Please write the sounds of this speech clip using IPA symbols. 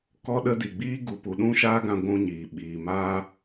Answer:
kɔ˧ɗə˧di˨ ɡ͡biː˧ɡu˨pu˨ɗũ˧ ʃaː˦ɡã˧ɡʷũ˧ɲiː˨ ɓiː˨ maː˧

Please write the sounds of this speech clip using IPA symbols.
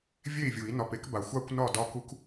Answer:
vʲe˥˨i̯vʲu˨˩˦i̯nɒ˨p e˦kba˨xʷa˥˨kʷ nɒ˥˨ dɒ˦ku˦k

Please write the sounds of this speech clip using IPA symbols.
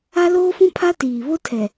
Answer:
a˦loː˦fũ˦pʰa˦ tiː˨ βo˦tʰɛ˨

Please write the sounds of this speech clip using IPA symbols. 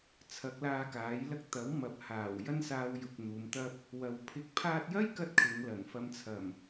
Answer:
t͡sʰɐ˨˥k̚laː˧kaː˨˥jlɐ˥k̚ t̪ɐ˨˥w mɐ˨˥p̚haː˨˩w jɐ˥nsaː˧wjʊ˨k̚ n̪uː˨˧mt̪ɐ˥p̚ | wɐ˨wpʰɪ˧k̚ pʰaː˧t̚jɐ˥jkɐ˧t̚ kʰɪ˨˧ŋlɐ˨˩n fɐ˧mt͡sʰɐ˨˩m

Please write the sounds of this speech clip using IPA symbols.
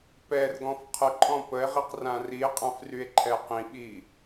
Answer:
pɛrɡɔ̃f qʰəǃʼɔ̃ pəe̯ʁiqrã rie̯qʼãfrye̯ǃʰɛ qĩɓi

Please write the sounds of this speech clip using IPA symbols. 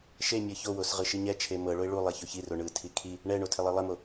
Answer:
ʃe mʲɤçowos ʁɯʃiɲɛt͡ʃʰe mɤɭoɪ̯ ɭu lˠɛçoçiro ɳɯtʰi kʰi | ɳɛɳo tʰelˠilˠɛmo

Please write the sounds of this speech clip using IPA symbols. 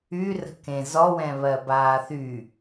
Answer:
y rə̤kẽ zɔwɛ̃ βɜbaːθy

